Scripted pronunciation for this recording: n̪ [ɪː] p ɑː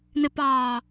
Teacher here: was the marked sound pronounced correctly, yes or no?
no